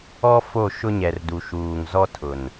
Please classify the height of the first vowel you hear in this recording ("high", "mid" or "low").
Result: mid